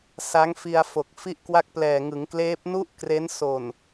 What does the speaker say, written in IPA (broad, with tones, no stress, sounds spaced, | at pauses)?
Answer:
s a˦˥ ŋ f i˧ a̯ f o˨˩ k̚ f i˥˩ ʔ k w a˦˥ k̚ p l ɛː˨˩ ŋ ɯ˩˦ ŋ k l eː˦˥ p̚ n u˥˩ ʔ k r e˦˥ n s o˨˩ n